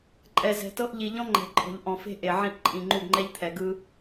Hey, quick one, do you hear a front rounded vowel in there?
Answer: no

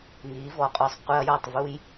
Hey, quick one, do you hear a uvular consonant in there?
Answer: yes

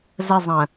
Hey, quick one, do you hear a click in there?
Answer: no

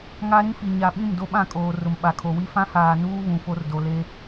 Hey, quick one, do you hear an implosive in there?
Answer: yes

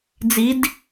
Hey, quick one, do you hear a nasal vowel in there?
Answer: no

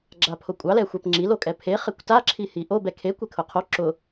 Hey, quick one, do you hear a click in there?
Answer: yes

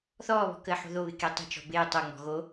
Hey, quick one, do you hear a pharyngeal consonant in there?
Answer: yes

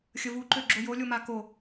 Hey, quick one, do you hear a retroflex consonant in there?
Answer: no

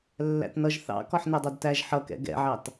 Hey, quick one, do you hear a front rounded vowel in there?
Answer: no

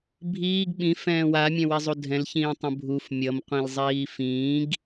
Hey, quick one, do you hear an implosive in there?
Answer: yes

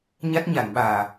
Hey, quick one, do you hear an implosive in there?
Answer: yes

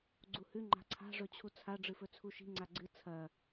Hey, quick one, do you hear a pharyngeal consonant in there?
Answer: no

